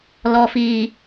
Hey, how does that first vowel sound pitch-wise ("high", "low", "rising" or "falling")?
low